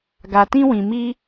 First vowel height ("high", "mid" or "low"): low